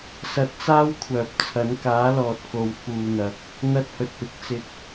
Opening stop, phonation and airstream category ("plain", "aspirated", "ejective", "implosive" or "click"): plain